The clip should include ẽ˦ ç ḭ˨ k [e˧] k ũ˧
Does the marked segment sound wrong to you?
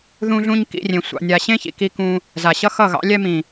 yes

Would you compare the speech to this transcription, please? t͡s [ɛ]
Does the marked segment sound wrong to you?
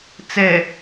no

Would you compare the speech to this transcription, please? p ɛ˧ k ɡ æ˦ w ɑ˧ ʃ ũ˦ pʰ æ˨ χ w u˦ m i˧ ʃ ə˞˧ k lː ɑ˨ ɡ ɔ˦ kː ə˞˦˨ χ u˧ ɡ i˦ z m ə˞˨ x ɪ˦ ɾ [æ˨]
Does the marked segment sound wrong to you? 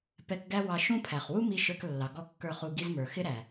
no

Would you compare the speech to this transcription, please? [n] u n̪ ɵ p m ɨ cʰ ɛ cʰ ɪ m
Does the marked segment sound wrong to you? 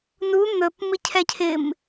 no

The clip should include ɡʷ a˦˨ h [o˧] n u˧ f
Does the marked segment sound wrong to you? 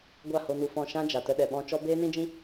no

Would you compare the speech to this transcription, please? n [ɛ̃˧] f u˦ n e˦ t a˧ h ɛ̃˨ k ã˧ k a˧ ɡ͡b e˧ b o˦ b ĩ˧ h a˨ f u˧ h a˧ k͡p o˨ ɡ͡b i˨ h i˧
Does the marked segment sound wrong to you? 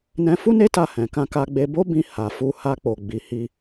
no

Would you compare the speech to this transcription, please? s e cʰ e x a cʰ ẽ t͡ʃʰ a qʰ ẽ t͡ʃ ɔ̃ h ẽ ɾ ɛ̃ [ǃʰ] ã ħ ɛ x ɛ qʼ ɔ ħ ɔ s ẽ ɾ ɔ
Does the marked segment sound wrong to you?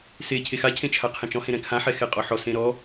yes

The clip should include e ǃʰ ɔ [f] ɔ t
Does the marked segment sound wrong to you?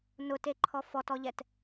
no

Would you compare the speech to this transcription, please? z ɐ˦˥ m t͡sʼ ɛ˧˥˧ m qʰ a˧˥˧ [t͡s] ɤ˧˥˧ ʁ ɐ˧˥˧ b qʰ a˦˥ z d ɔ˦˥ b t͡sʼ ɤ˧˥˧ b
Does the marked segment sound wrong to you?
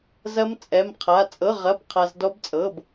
yes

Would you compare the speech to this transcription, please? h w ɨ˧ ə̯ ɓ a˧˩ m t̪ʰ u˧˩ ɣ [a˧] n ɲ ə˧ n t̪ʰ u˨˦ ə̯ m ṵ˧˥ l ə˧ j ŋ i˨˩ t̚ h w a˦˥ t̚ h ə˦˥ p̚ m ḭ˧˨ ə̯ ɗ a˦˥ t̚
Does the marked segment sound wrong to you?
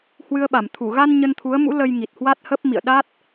no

